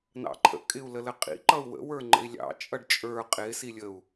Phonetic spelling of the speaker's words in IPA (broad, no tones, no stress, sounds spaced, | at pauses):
n ɑ̰ ǃʰ ə̰ kʼ ɪ u̯ l ə l ə qʼ ḭ ǃ ʌ u̯ w ə̰ w ə˞ ŋ͡ǃ ə̰ i̯ lʲ ɑ̰ t͡ʃʼ ʌ ɖ t͡ʃʼ ə˞ qʼ ɪ s i lʲ ə u̯